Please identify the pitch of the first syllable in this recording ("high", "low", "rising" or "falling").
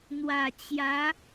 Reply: low